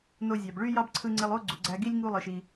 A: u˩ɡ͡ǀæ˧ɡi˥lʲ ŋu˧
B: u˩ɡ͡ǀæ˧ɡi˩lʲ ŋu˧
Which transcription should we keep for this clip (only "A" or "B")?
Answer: A